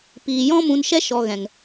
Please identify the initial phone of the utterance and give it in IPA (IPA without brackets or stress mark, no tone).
p